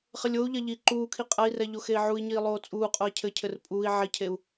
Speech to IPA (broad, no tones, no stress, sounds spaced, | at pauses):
χ ɘ lʲ o u̯ ʎ ɐ ʎ iː ǃ uː kʰ i qʼ ɐ i̯ r ɛ ʎ o x e i̯ ʕ u i̯ ɲ iː lˠ oː t͡sʼ uː qʼ o i̯ cʰ ɘ cʰ ɘ r pʼ uː i̯ ʕ i cʰ e u̯